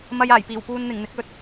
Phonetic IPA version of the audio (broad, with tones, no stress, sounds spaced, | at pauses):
m ɐ˧ j aː˨˩ j p iː˨˩ w p uː˧ n n̪ ɪ˨˩ ŋ n̪ ɪ˨˥ k̚ ɵ˨˥ t̚